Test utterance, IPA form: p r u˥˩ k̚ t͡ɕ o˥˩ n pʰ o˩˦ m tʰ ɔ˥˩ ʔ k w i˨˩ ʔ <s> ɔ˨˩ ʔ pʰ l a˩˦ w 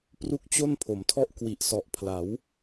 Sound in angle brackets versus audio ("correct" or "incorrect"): correct